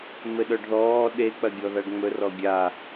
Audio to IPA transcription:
m ɘ ɗ œ ɖ ð ɔː ɗ e k͡p ɐ ɡʲ ɔ ð a ɖ ŋ͡m ɵ r ɔ ɡʲ a

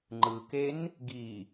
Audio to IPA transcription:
ŋ͡ǃ ɯ k e n | ɡ i

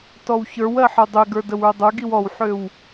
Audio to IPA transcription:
t ɔ w ç ə˞ w ɜ ħ ə˞ dˤ ø ɡ ə˞ d ə w ə˞ dˤ ə˞ ɡ i w ɔ w ħ ø w

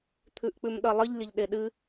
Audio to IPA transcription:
t̪ʰ ʉ ʔ k͡p ʉ m ɗ ʌ lˠ ɨ ʎ lʲ ə ʎ ɗ e ɗ ɨ

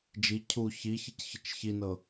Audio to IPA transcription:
d͡ʒ i cʰ u ç i ç i c ç ə t͡ʃ ç i n ɤ

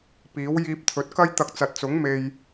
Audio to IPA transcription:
p iː˨˥ w j iː˧ p̚ t̪ʰ ɵ˨˥ t̚ k ɐ˥ j t̪ ɐ˧ k̚ t͡s ɐ˨ t̚ t͡s ʊ˨˥ ŋ m e˧ j

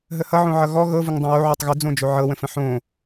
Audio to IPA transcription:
ɦ ə h ʌ ʕ õ ʕ ʌ ɣ ɔ ɣ ɤ v ʊ ŋ dˤ õ w o ʕ o tˤ ɣ ʏ d͡z õ d͡ʒ o ʕ ɤ w ə̃ f ə̃ ħ õ

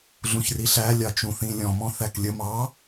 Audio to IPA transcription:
ɮ ũ ç r i ɬ æ lʲ ɑ t͡ʃ ũ θ ĩ lʲ ɔ̃ m ɔ̃ θ æ k lʲ ə m ɑ

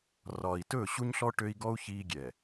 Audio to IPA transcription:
r ɒː˨ i̯ t ɵː˦˨ ɕ u˦ ɲ ɬ ɔ˦ ʈ ø˦ i̯ ɡ ɔ˦ u̯ ç iː˦ ɡʲ ɛ˨

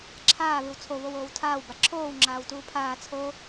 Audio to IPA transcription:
ǁʰ aː β ɯ w t͡sʰ o β o w oː w tʰ aː w b a ǁʰ oː w ŋ͡ǁ aː w t uː pʰ aː t͡sʰ o

